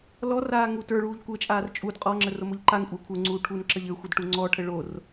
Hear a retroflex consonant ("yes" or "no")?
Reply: yes